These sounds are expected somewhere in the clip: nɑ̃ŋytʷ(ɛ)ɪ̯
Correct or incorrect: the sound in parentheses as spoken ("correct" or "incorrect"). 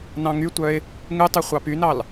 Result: incorrect